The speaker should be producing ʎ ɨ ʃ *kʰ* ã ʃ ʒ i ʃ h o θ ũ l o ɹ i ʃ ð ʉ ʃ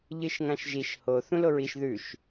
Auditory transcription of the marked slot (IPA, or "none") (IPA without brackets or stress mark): ŋ